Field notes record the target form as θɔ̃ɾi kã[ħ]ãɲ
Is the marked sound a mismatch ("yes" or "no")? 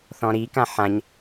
no